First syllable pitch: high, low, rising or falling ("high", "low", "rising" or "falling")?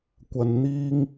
low